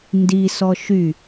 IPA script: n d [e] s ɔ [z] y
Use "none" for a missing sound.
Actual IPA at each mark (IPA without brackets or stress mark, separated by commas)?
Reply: i, ʃ